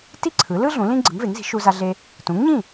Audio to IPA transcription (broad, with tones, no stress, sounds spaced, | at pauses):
t i˥ ǀʰ ɯ˩˥ l ɯ˥ ɮ ũ˩˥ l ĩ˥ ɡ͡ǀ ɯ˩˥ ŋ v e˩˥ ŋ z i̤˩˥ ʃ u˧ z a˧ ɮ e˧ | t ũ˩˥ ŋ ɲ ĩ˥˩